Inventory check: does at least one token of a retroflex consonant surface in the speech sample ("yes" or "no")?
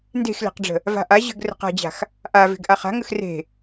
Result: yes